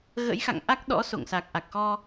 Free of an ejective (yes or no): yes